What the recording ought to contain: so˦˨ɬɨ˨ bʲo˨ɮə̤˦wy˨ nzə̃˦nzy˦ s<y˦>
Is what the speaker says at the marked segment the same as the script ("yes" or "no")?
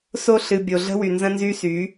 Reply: no